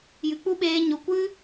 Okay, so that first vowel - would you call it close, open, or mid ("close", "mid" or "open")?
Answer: close